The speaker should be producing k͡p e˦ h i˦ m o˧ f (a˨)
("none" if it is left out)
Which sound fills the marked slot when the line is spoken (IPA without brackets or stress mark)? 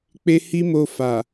a˨